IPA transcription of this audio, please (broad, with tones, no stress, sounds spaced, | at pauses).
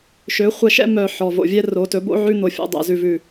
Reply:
ʃ ø˨˦ χʷ ɛ˧ ʃ ɛ̰˦ m œ˧ ħ ɔ˨ v o̰˨ vʲ ɛ˦ r o˨˦ t ɵ˨˦ b o̰˦ ʕ ʉ˦ n̪ o˧ fʲ o̰˦ dˤ ɛ̰˧ z ʉ˨ v ʉ˨